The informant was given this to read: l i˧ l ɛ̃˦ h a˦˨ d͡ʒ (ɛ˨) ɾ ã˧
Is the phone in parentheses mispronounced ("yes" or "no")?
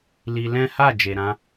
yes